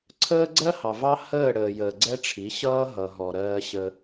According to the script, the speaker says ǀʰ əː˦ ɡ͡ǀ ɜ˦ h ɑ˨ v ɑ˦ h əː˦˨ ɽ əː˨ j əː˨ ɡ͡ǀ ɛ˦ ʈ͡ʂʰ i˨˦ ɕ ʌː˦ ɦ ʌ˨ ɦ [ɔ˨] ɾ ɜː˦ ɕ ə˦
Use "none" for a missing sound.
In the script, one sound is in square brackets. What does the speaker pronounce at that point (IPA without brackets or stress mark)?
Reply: ɔ˨